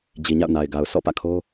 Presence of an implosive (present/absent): absent